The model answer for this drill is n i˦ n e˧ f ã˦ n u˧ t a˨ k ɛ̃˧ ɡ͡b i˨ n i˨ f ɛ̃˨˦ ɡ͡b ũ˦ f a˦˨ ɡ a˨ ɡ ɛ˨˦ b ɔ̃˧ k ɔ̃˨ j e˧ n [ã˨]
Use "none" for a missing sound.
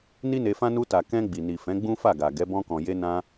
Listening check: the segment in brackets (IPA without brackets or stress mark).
ã˧